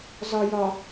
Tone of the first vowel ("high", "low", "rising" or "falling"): low